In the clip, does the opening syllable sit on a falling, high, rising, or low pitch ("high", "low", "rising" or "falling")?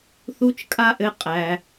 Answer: high